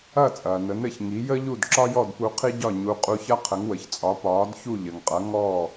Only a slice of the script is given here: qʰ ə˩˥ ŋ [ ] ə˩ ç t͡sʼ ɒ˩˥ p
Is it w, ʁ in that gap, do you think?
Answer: w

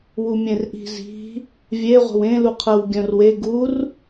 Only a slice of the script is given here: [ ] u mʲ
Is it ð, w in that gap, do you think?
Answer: w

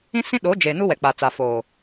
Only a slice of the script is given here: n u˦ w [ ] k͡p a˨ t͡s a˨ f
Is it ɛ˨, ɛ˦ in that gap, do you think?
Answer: ɛ˨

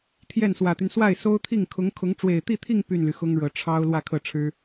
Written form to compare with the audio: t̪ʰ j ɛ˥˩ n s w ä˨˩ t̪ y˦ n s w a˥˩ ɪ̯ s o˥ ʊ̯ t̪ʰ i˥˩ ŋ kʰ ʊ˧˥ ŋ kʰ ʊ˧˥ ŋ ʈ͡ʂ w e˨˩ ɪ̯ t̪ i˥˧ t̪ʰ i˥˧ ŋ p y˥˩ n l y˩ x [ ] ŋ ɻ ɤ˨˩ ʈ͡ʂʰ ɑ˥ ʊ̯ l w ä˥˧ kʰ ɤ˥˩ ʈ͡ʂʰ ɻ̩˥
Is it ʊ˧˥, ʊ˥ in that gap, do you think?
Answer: ʊ˥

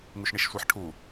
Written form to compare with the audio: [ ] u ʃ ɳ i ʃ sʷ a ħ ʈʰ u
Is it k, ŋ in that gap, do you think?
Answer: ŋ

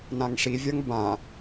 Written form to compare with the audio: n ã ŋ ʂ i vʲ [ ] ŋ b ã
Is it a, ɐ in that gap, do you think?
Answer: ɐ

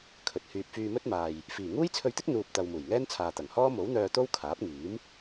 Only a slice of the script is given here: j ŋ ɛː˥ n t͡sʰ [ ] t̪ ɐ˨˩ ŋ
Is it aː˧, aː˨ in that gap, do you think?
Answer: aː˨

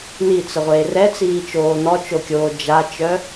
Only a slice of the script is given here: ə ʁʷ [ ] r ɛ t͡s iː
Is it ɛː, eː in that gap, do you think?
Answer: eː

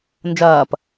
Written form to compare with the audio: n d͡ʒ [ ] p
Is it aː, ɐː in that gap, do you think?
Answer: ɐː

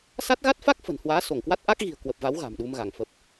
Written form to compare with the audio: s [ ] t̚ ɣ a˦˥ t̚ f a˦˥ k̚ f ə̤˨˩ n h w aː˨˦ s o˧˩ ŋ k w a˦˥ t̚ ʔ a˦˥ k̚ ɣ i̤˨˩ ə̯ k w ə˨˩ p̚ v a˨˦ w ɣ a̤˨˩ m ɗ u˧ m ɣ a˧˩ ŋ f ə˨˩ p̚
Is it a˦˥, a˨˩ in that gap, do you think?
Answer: a˦˥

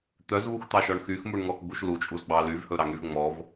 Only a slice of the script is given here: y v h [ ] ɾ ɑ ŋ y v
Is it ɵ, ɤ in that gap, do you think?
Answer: ɵ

